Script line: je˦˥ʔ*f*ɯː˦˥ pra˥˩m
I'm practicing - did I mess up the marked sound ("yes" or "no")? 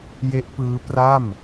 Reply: yes